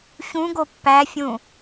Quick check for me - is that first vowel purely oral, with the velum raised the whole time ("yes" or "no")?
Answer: no